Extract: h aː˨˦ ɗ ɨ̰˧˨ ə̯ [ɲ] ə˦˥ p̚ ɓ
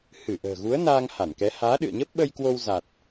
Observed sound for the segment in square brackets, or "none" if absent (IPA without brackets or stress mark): ɲ